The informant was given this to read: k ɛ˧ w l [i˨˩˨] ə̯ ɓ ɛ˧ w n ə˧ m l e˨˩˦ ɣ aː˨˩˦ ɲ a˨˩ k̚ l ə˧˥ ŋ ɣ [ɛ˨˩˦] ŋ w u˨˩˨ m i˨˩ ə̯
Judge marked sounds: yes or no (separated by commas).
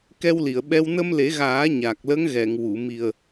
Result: yes, no